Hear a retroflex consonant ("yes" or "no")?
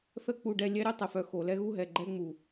yes